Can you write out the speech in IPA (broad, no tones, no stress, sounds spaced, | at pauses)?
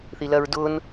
θ i l ɜ ɹ d ʊ n